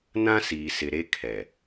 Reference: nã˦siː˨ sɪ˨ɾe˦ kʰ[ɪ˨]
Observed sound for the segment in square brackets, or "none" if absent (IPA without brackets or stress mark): ɛ˨